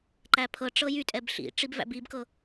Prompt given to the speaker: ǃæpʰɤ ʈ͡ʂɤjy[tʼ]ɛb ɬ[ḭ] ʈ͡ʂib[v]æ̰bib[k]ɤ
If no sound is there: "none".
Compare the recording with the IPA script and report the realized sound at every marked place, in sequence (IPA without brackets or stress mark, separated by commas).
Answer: tʼ, ḭ, v, k